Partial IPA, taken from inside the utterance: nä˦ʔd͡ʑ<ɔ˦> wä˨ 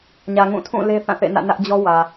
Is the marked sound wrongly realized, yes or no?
no